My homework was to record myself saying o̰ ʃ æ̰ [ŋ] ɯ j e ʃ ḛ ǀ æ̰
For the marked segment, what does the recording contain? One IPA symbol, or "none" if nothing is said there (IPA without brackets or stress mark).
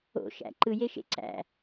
ǃ